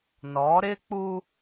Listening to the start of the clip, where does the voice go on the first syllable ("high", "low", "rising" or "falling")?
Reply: rising